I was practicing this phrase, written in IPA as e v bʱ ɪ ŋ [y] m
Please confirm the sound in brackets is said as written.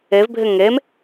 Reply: no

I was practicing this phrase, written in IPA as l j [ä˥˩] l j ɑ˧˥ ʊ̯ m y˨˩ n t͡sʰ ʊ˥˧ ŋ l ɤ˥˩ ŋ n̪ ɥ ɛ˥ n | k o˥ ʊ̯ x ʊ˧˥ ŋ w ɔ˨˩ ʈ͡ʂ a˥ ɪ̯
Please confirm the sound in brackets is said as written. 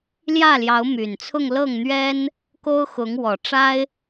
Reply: yes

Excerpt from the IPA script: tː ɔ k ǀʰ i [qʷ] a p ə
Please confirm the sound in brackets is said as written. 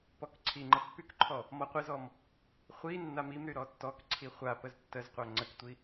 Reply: no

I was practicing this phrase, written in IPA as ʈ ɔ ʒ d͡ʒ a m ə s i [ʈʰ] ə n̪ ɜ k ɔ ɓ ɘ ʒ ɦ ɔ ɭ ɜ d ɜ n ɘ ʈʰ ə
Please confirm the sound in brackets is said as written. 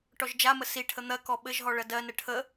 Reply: yes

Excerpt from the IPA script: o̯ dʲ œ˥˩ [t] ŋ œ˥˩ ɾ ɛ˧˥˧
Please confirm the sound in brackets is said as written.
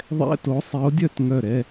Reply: yes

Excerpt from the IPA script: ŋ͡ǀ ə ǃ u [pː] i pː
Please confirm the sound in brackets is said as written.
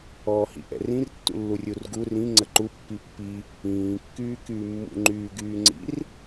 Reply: yes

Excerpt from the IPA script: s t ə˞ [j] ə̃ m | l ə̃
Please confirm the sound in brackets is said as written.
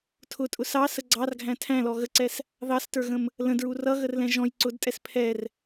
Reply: no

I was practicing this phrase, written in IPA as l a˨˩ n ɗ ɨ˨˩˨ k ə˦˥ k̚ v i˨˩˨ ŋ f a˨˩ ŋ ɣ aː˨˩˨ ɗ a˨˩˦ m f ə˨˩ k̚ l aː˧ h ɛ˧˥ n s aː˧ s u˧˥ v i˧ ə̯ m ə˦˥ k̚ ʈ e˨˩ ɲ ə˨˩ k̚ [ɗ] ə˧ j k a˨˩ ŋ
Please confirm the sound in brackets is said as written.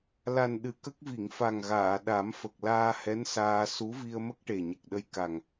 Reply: yes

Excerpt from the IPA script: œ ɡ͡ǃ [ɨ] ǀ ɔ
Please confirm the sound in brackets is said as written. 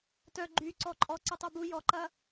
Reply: no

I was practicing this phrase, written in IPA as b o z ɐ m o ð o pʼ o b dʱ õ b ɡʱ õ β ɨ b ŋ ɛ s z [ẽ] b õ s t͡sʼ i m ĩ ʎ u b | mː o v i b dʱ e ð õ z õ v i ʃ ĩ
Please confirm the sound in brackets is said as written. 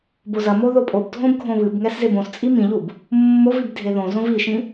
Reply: no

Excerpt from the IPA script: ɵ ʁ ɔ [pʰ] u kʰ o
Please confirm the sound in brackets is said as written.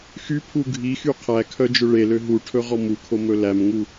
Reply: no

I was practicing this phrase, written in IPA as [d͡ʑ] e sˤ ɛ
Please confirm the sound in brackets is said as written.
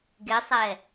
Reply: no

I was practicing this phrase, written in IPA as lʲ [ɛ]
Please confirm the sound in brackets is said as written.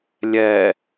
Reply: yes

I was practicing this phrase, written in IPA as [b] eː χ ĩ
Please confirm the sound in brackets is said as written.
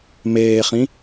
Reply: no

